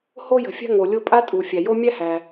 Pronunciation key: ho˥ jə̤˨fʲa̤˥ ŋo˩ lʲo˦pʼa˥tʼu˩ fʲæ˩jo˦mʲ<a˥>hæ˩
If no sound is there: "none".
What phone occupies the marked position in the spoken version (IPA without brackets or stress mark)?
æ˥